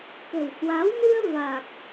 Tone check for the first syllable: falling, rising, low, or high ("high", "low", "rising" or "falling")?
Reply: low